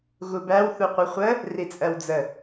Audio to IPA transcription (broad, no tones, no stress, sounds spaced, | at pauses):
ɣ u b æ w θ u qʷ ʌ χʷ ə | r i t͡sʼ ɜ w d͡z ə